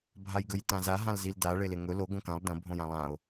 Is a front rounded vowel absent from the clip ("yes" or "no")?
yes